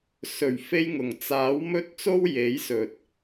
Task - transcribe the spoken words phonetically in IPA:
sɵ˨˩ɥfe˧jŋʊ˨˩ŋ t͡saː˨˥wmɵ˥t̚ t͡so˥wje˨˥jsɵ˨t̚

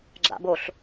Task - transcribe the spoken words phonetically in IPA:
ɡ͡ǁa̰boɬ

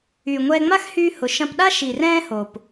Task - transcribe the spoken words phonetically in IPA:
yː˨ŋʷɛː˧ŋ͡ma˦xhyː˧ hʊ˨ ʃɐ̃˧pɗa˦ ʃi˨rɛ̃ː˧ ho˨p

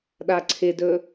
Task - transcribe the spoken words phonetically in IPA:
ɗaǀʰɪdɵ

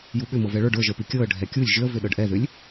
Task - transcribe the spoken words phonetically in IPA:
juɓʏ mɤvɛɭə˞ɖ ə˞ʒə˞pi kʲɤə̯ ɖʱɛkʲulʲ ʒʏə̯vʏ ɗɤɖʔɛðʏlʲ

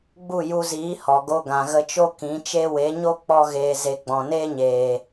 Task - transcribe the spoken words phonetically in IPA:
ɡ͡bu˦˨ju˧ziː˨˦ hɔ˨ɡo˧ ɡã˨ɣə˧t͡ʃo˦ kĩ˨˦t͡ʃe˦ we˨˦ɲo˦ k͡pɔ˦ɣeː˧ze˧ ɡ͡bɔ̃˨neː˦ɲeː˨

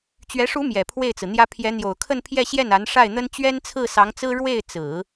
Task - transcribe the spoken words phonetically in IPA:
t͡ɕɥɛ˧˥ʂu˧˥ mjɛ˨˩pʰwe˥˩ɪ̯t͡sɹ̩˩n̪jä˥ pʰjɛ˧˥n̪jo˨˩ʊ̯kʰə˥˧npʰjɛ˥˧ ɕjɛ˥˩na˧˥n ʂa˥˩ɪ̯n̪ə˥n t͡ɕɥɛ˥nt͡sʰɹ̩˥˩sɑ˧˥ŋt͡sɹ̩˥ ɻwe˥˩ɪ̯t͡sɹ̩˨˩˦

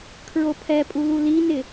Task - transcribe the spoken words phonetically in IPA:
kʰɹopʰɛpʼulu linɪ

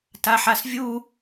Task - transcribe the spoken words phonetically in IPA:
taħasvʲu

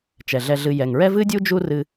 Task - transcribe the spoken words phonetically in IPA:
t͡ʃɛ˩ɮɛ˨ɮɨ˨ jɛ˩ŋɹɛ˥ vɨ˥dʲu˥ d͡ʒu˦rɨ˨

